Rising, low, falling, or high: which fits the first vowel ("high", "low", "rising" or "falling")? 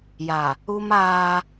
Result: low